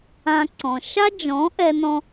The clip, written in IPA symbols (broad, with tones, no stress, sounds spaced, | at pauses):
ã˧ ǀ ɔ̃˨ ʃ a˦ d͡ʒ ɔ̃˨˦ ʔ ɛ˧ n ɔ̃˧